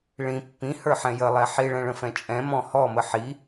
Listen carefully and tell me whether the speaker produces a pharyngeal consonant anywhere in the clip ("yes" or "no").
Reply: yes